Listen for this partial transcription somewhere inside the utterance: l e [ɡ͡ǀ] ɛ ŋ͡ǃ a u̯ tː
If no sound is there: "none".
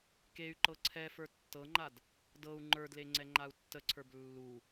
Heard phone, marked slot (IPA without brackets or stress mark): ŋ͡ǀ